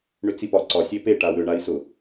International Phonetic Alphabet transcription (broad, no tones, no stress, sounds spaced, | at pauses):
ɳ ʏ t͡s i p ɒ ǀ ɒ sʲ e p e ʈ a w ʏ ɳ a i̯ s ʊ